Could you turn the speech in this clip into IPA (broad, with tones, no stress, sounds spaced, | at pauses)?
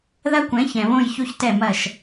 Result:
ð ɐ˦ kʷ ɛ̃˨˦ ç ɛ̃˨ β õ˦˨ j ç o˦ ç t ɛ˦˨ m ɐ˦˨ ʃ